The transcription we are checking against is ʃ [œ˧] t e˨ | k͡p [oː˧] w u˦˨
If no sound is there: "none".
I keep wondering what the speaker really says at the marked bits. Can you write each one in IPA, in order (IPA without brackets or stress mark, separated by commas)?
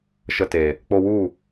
ə˧, o˧